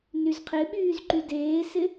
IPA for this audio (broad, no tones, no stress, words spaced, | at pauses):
nyzqʰɪɓyːz ǃydeːsɪ